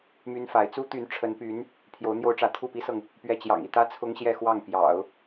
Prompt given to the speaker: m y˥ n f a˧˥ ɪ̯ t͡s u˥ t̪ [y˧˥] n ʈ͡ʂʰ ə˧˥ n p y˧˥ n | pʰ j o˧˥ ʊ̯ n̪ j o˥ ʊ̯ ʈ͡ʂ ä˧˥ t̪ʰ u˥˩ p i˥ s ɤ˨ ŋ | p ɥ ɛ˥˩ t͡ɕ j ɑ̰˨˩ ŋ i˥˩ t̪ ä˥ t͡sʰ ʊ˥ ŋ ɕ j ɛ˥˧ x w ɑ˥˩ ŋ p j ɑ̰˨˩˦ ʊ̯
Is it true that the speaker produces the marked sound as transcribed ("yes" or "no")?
yes